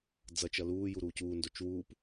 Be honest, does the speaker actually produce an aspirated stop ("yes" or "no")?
no